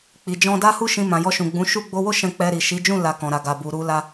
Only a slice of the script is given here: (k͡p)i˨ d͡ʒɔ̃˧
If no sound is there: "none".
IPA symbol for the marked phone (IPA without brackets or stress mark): k͡p